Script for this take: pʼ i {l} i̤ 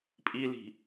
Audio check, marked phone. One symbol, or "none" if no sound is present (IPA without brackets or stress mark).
l